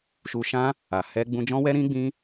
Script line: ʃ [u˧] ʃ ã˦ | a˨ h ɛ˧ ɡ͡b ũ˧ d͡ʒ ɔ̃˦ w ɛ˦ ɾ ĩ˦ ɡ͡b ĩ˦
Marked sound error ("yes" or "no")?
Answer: no